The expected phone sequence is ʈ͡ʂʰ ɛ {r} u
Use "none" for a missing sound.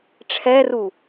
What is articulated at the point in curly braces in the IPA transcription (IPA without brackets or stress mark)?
r